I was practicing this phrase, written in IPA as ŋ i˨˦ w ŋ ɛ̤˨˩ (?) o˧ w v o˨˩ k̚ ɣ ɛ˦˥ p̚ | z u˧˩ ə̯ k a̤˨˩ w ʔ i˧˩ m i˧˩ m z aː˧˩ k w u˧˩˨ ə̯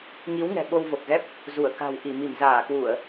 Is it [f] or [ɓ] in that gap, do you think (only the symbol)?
ɓ